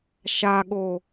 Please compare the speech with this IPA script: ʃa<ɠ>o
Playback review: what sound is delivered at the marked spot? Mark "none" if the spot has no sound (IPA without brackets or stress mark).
ɠ